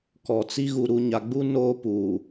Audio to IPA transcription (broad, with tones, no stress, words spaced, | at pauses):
kɔ˨t͡si˦ɣu˨ ɾu˨ɲa˨ɡ͡bu˦ noː˦puː˨